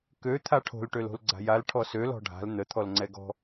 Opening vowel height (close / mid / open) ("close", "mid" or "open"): mid